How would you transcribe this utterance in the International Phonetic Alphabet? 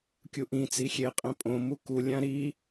kʲuʔĩt͡si xʲeqʼẽ pʼõ mukulʲã ɾi

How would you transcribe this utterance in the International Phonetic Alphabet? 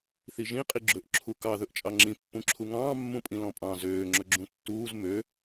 θiʒĩ qʼiɡ͡ǁɵʔ ǁʰukɑ ðɵʔt͡ʃʼɑŋ͡ǁĩ pːũǁʰuŋɑ̃ː mːũpʼĩlɔ̃pʼɑ̃ zøː ŋ͡ǁɵɡ͡ǁũtːuːz mø

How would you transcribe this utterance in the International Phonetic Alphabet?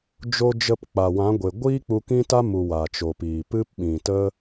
d͡ʒo˧d͡ʒə˧p k͡pa˨wã˨˦ɡʷe˨ ɡʷiː˦k͡pu˧ kĩ˦ta˦mu˨ wa˨t͡ʃo˨piː˨ pɨ˦pɓĩ˨tə˦

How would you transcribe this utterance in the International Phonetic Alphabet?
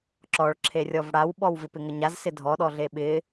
ǁɔɭ ǁʰerʲɔvɽawɓɔw vɪpɪŋəɲaz sɪdʱɔɗɔɮe ɓɪ

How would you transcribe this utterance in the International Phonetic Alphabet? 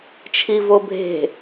t͡ʃʰivobʱe̤

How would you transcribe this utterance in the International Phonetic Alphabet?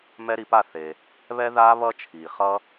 mɛ˦˥ɾi˩˧pa˥˨ θe˩ | βɛ˦˥ða˦˥ βʌ˦˥t͡ʃʰi˩χʌ˦˥

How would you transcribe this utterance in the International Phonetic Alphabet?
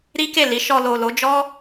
ɾi˦ke˦˨li˨˦ ʃɔ˧ lo˨ lo˨˦d͡ʒɔ˦

